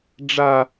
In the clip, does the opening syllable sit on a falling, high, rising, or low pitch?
high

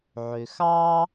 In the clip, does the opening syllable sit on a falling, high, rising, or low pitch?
low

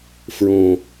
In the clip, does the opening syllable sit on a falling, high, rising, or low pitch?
low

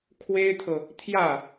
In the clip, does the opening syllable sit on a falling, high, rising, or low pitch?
high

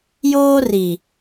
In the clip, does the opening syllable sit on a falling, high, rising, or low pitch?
high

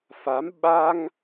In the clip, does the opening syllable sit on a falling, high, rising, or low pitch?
rising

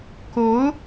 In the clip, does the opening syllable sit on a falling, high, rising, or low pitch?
rising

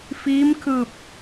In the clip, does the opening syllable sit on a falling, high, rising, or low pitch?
rising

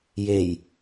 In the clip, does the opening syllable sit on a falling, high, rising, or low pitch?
low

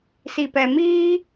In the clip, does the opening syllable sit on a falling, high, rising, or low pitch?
low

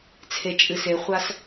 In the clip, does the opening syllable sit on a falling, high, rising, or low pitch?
low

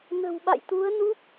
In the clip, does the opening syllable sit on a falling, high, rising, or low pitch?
low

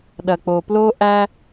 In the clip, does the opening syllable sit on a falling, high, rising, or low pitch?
low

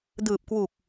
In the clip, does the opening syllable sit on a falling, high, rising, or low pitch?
low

